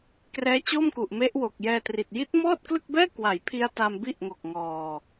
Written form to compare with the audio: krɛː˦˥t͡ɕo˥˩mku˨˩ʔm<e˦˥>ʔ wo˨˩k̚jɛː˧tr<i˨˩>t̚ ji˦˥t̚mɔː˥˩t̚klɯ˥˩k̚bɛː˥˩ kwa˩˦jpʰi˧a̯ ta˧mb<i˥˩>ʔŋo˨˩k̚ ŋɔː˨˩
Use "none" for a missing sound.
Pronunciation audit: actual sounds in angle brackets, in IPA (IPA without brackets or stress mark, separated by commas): e˦˥, i˨˩, i˥˩